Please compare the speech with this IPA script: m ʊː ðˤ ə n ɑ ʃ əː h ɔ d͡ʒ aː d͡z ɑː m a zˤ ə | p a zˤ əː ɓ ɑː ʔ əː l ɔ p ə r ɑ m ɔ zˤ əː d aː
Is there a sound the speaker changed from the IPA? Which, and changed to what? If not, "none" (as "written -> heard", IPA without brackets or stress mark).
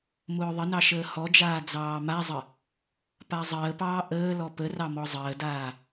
ɓ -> p